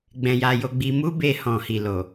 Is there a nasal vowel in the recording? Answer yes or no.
yes